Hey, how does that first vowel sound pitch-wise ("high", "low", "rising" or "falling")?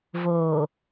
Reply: low